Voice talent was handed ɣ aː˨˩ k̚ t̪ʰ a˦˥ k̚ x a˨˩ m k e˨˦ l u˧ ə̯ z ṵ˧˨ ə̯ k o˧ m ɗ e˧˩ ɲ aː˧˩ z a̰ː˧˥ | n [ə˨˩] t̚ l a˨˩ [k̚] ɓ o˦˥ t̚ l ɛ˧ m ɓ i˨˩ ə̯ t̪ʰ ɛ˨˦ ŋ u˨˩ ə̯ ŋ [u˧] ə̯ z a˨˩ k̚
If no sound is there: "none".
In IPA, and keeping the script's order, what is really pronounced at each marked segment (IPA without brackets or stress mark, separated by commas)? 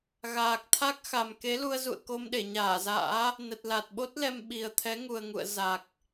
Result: ə˨˩, t̚, ṵ˧˨